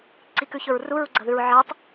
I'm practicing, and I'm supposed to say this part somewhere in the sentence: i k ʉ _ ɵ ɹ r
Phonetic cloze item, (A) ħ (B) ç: B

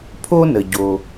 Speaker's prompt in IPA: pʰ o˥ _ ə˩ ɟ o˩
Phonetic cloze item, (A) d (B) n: B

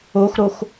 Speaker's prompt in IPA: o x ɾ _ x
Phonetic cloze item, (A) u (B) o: B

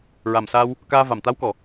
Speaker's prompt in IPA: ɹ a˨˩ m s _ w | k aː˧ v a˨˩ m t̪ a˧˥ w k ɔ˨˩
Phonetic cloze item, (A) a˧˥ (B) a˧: B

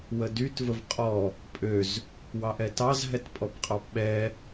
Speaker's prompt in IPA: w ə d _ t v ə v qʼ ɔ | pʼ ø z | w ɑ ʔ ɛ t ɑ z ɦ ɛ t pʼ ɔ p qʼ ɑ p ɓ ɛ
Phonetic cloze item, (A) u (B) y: B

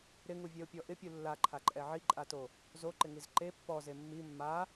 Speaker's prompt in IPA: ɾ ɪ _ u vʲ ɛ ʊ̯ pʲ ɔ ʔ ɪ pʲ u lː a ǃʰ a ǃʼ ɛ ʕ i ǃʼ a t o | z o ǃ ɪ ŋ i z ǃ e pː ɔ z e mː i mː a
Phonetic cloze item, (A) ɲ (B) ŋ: B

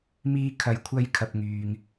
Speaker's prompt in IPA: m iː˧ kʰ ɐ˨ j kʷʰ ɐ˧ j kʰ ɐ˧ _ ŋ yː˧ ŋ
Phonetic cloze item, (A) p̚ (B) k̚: A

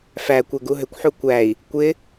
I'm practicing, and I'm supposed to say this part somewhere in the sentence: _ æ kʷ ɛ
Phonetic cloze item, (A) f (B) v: A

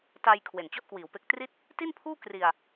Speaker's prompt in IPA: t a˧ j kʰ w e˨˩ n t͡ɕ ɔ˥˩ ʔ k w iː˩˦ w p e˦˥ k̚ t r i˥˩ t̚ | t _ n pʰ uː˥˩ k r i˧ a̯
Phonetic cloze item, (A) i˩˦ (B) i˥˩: B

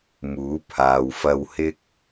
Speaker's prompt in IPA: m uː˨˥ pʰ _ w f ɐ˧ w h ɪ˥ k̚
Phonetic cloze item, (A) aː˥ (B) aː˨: B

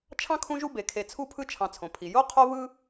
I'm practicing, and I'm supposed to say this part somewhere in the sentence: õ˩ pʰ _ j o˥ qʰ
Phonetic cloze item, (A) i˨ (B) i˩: B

